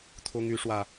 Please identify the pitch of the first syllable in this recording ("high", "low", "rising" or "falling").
high